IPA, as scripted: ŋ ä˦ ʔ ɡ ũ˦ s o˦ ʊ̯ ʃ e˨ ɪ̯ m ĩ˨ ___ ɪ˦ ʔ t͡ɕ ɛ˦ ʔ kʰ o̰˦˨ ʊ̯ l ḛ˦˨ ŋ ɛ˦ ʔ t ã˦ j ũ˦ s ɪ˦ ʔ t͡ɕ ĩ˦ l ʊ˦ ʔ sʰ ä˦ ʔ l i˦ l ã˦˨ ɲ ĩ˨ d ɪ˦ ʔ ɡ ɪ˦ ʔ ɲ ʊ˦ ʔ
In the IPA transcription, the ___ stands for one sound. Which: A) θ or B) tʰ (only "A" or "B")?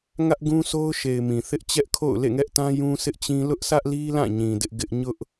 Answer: A